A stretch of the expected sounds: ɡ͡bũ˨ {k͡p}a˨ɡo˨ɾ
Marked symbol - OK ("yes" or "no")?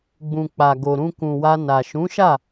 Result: yes